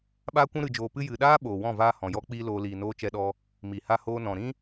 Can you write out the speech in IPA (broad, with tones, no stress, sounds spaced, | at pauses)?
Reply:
ɓ aː˦ kʷ ũ˦ ɾ ɨ˧ d͡ʒ oː˧ p ɨ˦ j ɨ˨ ɗ aː˦ ɓ oː˨ w ɔ̃˦˨ v aː˦ h ɔ̃˨ j ɔ˦ k͡p iː˦ l oː˧ l iː˨ n oː˧ t͡ʃ ɛ˧ ɗ ɔ˧ | m i˨ h a˧ h oː˧ n ɔ̃˨ ɾ ĩ˦